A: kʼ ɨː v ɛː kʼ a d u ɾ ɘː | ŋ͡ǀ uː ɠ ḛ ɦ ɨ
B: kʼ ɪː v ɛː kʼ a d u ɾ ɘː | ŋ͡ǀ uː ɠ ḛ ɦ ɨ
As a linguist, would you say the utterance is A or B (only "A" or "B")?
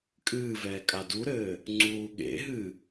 A